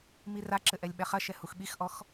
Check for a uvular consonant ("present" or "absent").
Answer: present